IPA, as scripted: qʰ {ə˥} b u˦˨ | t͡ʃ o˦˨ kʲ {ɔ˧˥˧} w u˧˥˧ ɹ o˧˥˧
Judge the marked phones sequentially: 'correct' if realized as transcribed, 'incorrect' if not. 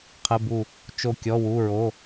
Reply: incorrect: ə˧˥˧, correct

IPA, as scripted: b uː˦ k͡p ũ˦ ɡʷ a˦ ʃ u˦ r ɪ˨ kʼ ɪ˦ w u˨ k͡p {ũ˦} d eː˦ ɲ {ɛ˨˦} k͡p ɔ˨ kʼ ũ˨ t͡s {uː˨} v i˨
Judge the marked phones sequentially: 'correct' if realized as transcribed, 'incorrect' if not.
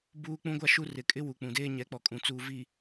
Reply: incorrect: ũ˨, correct, correct

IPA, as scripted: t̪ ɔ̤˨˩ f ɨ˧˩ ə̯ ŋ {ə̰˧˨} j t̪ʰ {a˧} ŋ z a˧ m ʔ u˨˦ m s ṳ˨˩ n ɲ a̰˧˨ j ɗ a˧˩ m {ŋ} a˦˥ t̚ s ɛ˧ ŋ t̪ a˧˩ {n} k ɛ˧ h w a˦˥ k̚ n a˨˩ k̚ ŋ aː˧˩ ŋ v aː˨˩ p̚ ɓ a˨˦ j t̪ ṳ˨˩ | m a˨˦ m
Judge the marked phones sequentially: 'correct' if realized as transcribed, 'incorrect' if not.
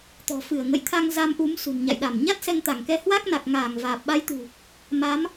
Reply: correct, correct, incorrect: ɲ, incorrect: ŋ

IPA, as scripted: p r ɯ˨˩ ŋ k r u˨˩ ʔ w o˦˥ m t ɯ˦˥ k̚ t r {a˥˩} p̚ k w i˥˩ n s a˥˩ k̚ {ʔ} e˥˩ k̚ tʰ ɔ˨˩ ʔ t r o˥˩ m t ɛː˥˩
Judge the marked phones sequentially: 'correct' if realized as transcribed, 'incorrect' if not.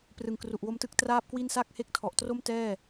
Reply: incorrect: aː˥˩, incorrect: h

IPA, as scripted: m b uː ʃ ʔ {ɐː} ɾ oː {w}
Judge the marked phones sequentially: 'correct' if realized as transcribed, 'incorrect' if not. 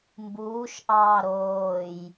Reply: incorrect: ɑː, incorrect: j

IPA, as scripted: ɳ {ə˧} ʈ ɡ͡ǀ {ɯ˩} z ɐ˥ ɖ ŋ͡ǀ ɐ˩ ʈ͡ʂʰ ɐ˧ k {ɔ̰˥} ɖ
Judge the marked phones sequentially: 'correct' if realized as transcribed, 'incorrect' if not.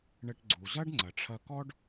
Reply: correct, incorrect: u˩, incorrect: ɔ˥

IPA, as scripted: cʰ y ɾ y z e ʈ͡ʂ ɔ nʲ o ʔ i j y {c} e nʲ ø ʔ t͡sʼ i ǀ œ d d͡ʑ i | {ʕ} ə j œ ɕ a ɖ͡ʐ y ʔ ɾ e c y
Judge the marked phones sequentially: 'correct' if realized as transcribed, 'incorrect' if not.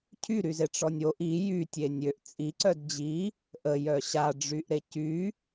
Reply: incorrect: tʲ, incorrect: ʔ

